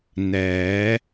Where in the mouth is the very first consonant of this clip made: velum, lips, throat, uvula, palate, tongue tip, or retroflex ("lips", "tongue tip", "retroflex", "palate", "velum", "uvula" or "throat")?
tongue tip